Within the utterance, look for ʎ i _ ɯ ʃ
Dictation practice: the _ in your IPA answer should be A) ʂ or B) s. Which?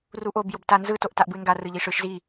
A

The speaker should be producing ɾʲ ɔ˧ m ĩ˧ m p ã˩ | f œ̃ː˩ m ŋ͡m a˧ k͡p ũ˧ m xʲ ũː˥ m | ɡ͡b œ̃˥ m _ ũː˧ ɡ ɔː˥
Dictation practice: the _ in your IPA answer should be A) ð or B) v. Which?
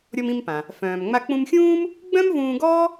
B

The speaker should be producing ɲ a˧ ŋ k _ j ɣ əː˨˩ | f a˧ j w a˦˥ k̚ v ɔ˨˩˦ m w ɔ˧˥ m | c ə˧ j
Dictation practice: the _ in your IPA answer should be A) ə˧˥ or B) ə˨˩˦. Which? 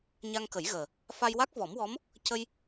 B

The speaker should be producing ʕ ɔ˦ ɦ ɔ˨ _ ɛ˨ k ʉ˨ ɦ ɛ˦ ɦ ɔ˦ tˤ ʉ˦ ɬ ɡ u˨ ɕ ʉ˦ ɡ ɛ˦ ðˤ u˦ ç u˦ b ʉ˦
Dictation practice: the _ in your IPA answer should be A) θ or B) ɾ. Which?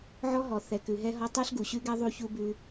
A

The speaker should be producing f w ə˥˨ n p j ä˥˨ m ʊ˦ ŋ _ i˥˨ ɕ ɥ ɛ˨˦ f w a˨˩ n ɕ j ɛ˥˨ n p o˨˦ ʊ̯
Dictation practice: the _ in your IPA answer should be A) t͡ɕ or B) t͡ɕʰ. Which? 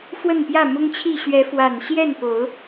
B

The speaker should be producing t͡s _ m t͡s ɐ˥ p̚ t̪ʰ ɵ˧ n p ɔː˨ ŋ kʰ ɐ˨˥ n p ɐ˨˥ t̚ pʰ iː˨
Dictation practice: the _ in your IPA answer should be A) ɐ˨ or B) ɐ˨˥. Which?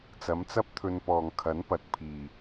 B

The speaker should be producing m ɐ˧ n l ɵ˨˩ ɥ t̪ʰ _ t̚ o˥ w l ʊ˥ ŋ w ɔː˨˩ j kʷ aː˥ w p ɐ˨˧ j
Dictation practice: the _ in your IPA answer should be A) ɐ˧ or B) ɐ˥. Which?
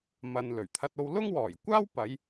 B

